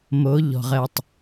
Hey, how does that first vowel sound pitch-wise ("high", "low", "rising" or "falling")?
rising